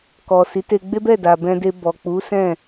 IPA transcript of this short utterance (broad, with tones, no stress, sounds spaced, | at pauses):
k ɔ˨ s i˨˦ t e˧ ɡ͡b e˦ b ɛ˦˨ d a˨ b ɛ̃˧ d e˧ b ɔ˨ k͡p u˨˦ s ɛ̃˦˨